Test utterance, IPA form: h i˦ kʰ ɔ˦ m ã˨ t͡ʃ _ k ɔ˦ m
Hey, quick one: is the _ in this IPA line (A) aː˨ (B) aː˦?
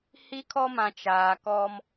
A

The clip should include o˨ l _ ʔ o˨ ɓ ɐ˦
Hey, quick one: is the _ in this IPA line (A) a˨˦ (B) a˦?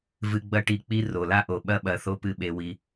B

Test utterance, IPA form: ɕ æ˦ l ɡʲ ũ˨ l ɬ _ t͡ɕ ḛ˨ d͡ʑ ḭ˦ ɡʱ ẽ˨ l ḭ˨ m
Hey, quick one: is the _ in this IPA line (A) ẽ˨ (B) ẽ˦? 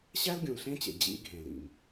B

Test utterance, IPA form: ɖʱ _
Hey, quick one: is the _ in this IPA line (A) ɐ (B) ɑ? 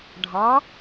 B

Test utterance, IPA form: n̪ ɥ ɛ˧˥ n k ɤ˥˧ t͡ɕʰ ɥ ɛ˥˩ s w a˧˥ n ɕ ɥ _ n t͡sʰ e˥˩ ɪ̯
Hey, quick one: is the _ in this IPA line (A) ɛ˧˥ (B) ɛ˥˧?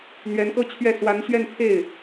B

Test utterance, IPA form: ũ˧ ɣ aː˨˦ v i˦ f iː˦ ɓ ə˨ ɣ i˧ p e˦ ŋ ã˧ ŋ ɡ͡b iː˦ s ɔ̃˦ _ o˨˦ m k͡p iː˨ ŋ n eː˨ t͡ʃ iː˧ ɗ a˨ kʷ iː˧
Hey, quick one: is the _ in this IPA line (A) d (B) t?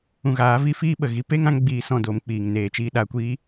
A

